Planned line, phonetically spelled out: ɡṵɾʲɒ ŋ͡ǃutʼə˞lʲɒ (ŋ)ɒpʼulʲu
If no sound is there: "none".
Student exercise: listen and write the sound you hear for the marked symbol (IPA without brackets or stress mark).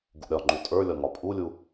ŋ